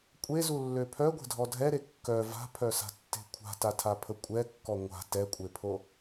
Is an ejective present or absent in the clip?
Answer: present